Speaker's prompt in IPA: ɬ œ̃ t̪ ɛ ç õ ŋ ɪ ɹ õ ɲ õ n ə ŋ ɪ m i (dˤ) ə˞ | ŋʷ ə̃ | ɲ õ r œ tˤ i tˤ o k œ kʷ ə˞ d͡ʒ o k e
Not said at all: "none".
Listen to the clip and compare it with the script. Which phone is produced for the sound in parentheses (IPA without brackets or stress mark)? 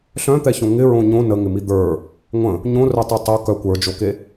d̪